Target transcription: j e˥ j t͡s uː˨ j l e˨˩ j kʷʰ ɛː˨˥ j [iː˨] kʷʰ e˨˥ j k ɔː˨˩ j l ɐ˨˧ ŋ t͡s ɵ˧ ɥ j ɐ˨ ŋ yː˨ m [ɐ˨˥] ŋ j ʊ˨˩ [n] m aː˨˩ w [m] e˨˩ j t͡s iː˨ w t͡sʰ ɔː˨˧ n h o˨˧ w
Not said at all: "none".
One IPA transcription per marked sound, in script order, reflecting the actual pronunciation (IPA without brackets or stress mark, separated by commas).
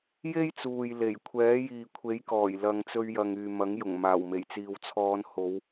iː˨, ɐ˨˥, ŋ, m